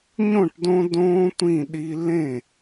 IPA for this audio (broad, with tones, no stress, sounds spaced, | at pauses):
ɲ õ˥˨ ʈ d õ˦ d õː˦ tʷ ĩ˥˨ ɗ i˦ l ẽ˥˨